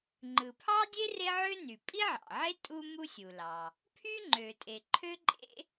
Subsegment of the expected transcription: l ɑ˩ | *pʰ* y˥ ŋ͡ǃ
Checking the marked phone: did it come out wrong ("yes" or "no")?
no